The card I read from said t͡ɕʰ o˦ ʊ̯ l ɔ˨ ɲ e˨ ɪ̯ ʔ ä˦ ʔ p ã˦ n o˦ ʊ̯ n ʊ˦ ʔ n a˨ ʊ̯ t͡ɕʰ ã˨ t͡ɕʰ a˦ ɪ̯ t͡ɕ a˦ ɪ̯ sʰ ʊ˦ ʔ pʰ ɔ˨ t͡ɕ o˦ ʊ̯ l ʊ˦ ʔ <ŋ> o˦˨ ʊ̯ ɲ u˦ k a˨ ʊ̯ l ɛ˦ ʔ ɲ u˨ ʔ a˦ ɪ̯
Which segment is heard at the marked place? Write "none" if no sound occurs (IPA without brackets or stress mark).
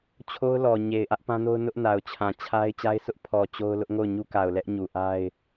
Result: ŋ